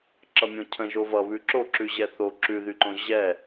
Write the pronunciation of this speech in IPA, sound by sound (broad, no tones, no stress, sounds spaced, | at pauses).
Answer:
ǁ ʌ mʲ õ cʰ ə̃ ʒ o v ʌ β ʉ ǁ o ǁ ʉ ʑ ɛ θ o ǁ ʉ ð y ǃ õ ʑ ɛ